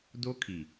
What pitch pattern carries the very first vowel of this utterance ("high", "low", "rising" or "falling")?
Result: high